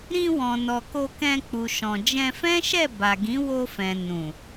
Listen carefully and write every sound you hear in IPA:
ɾ ĩ˧ w ɔ̃˨ n ɔ˨ k o˧ k ɛ̃˧ k͡p u˨ ʃ ɔ̃˨ d͡ʒ ɛ̃˧ f ɛ̃˦ ʃ ɛ˦˨ b a˨ ɡ ĩ˨˦ w o˧ f ɛ̃˨ n ũ˨

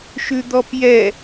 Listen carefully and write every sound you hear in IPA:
ʃ ʉ d̪ ɔ p j ɛ

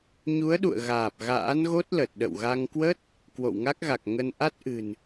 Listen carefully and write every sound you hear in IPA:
ɲ u˨˦ ə̯ ɗ ṵ˧˨ ə̯ ɣ aː˨˩ p̚ ɣ a̰ː˧˥ n ɣ o˦˥ t̚ l ə˨˩ t̚ ɗ ə̰˧˨ w ɣ a˧ ŋ k w ə˦˥ t̚ | k w o̰˧˨ w ŋ a˦˥ k̚ ɣ a˨˩ k̚ ŋ ə˧ n ʔ a˦˥ t̚ ʔ ɨ̤˨˩ n

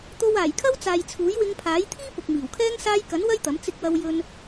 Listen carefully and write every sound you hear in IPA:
t̪ o˧ w aː˨˩ j kʰ ɐ˥ w t͡s aː˨ j t͡sʰ uː˨˥ j w ɪ˧ ŋ pʰ aː˨˥ j t̪ʰ iː˥ p ʊ˨ k̚ m iː˨˩ w kʰ ɛː˥ ŋ s aː˧ j k ɐ˨˥ n w ɐ˥ j t̪ ɐ˨˥ m t͡s ɪ˧ k̚ w ɐ˧ w j ɵ˧ n

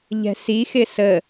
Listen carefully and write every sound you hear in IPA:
ʎ ɛ̤ s i x ɪ s ə

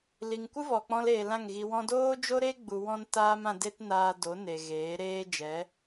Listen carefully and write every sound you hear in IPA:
l i˨ ŋ kʷ ɨ˦ v ɔ˨ k͡p ɔ̃˧ l eː˨ l ã˦˨ ŋ ɣ i˧ w ɔ̃˧ d oː˦ d͡ʒ o˦ ɾ e˦ ɡ͡b u˧ w ɔ̃˦ n t aː˦ m ã˧ d e˦ t n aː˧ d o˨˦ n e˨ ɣ eː˨˦ ɾ eː˦ d͡ʒ ɛ˨˦

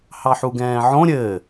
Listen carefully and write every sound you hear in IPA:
h ɑ ħ u ɡ ɛ̃ː ʕ õ ɾʲ ɘ

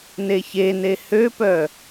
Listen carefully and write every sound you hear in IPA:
n e ç e n e h ø p œ

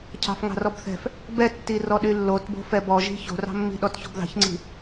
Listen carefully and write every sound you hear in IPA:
cʰ ɑ̤ f ŋ ɑ̤ r ɔ b θ ɛ̤ f | b ɛ tː i r ɔ ɗ y lː o t b o̤ f ɛ b ɔ ʒ i̤ ç o̤ r ɑ̤ mː i̤ ɗ ɔ t ç o̤ b ð ɑ̤ ç ŋ͡ǀ i̤

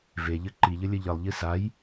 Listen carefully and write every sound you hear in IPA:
v e ʎ ɘ ǃ i ʎ ɘ lʲ ɘ ʎ ɘ lˠ ʎ i s a j

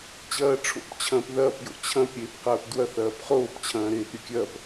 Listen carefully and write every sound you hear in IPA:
t͡ɕ ɐː ʈ͡ʂʰ o̰ p t͡ɕʰ ɐ̃ː p ð ɐː p j o̰ t͡ɕʰ ɐ̃ p ɾʲ eː p q ɐː p d w ɐ θ ɐː p χ oː p t͡ɕʰ ɐ̃ː ɾ eː p ɾʲ ɐ kʲ ɐ p

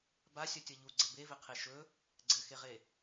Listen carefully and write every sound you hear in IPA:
b a sʲ ʌ tʲ ʌ ʎ u ɡ͡ǀ ɘ b e v e qʰ e ʃ ɵ | ɡ͡ǀ ɘ x e ʁ e

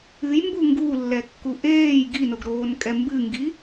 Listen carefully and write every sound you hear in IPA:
ɨ j m b u ŋ ɡ u lː ɛ kː u ʔ eː j ɡ i n o ɡ ɾ oː n kʼ ɛ m b ɨ ŋ ɡ i

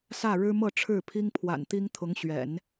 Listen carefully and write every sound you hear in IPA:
s ä˥˩ ɻ ɻ̩˥ m ɤ˥˧ ʈ͡ʂʰ ɻ̩˥˩ pʰ i˥ ŋ pʰ w a̰˨˩ n t̪ i˥ ŋ t̪ʰ ʊ˧˥ ŋ ɕ ɥ ɛ̰˨˩˦ n

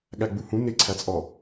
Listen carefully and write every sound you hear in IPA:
ɠ æ ɡ͡b u h ũ n ɪ ǀʰ æ t͡sʼ ɔ

